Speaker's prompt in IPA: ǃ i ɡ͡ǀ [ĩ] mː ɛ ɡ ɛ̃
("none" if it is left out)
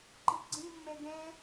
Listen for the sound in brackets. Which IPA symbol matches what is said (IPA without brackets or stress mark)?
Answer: ĩ